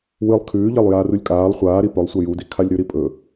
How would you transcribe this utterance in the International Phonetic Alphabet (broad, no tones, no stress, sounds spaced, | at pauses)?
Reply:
w ɨ lˠ kʰ ʉː ʎ ɐ lˠ j aː r u lʲ kʼ aː lˠ χʷ aː ɾ i p ɵ lˠ sʷ ɐ j u d i kʰ a lʲ ɾ ʉ ɾ i pʼ ɵ